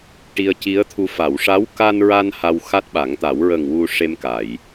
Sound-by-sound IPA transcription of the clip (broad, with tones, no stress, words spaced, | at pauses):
ʈi˧ə̯ci˧˥ə̯t̪ʰu˧ fa˨˩˨wʂa˧˥w ka˧nɹa˧n ha˧wxa˦˥t̚ɓa˨˩˦ŋt̪a˨˩˦w ɹə˨˩ŋ wu˧ʂe˧mka˨˩˨j